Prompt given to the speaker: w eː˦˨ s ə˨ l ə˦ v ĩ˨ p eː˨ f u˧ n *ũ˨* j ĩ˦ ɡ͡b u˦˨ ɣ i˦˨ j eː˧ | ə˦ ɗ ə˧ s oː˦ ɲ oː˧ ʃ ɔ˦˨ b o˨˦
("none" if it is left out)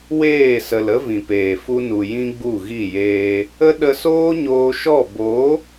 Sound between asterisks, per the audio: u˨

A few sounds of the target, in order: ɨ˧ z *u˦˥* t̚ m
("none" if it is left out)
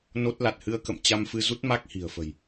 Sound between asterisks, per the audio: u˦˥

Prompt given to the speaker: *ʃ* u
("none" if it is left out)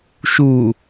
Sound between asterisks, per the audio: ʃ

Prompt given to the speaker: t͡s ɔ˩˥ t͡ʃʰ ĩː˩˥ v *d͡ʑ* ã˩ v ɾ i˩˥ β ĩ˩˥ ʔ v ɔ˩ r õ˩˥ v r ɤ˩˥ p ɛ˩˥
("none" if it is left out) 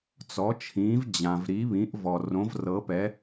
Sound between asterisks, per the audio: d͡ʑ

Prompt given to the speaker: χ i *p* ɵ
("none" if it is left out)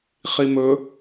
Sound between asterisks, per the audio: m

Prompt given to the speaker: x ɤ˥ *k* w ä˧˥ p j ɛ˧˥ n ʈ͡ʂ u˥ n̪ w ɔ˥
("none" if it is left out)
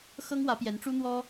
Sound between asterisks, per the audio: ŋ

